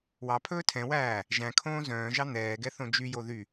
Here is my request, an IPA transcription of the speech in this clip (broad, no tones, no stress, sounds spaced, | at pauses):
w ɑ pʰ ɵː tʰ ɛ̃ w æː | ʒ æ̃ kʰ õː z œ̃ː ʒ ɑ n̪ ɛː ɡ ɛ θ õ d͡ʒ y j o ð y